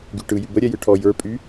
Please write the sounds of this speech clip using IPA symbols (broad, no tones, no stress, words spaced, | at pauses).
ɡy ʈɯ jybə ɾʲɛjɯʈʰɔ jə˞pʼy